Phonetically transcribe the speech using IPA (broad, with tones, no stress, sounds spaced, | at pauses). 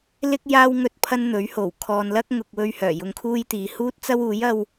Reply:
l ɪ˥ k̚ j aː˥ w ŋ ɵ˧ t̚ pʰ ɐ˥ n n̪ ɵ˨˥ ɥ h o˨˩ w kʰ ɔː˨ n l ɐ˥ k̚ ŋ ʊ˨ k̚ w ɵ˧ ɥ h œː˨˩ j ʊ˧ ŋ kʰ uː˥ j t̪ iː˨˧ h uː˥ t̚ t͡s ɐ˥ w uː˨˥ j ɐ˥ w